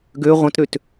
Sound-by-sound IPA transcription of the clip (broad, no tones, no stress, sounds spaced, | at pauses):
ɡ ø ʁʷ ə̃ t ɾ ø t